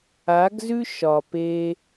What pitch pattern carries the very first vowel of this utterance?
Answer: rising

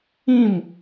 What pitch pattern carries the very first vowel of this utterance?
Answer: falling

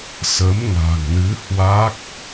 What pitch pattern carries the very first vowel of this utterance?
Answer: rising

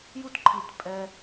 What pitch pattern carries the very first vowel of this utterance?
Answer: high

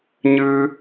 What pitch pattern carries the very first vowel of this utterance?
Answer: high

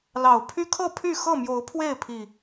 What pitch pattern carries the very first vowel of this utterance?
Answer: low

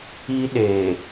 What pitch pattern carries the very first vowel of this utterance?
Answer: high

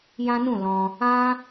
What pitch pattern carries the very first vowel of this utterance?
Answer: high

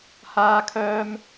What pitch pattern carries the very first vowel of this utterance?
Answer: low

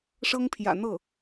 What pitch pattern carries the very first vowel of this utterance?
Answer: high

